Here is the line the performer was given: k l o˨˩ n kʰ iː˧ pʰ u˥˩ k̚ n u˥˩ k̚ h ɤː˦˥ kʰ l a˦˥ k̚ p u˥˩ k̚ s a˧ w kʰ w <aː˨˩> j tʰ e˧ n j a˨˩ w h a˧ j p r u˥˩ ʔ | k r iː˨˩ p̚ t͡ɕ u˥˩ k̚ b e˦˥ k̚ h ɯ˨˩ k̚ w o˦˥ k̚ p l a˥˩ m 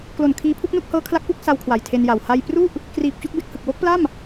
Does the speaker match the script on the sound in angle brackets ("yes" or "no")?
no